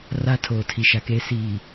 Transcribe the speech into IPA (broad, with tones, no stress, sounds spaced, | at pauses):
r a˦ tʰ oː˨ tʰ i˨ ʃ a˨ k eː˦ s iː˨